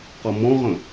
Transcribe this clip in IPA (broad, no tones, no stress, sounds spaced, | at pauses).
q ʌ m ɔ̃ ʁ ə̃